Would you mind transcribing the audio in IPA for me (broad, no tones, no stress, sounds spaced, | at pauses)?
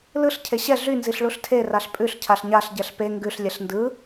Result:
l ɯ ɬ cʰ e ɕ ɛ ɮ y n z i ɬ ɭ u ɬ tʰ e r a ɬ pʼ ʉ ɬ cʰ a ɬ ɲ a ɬ ɟ ɛ ɬ p e ŋ ɡ ʉ ɬ lʲ ɛ ɬ n d ɯ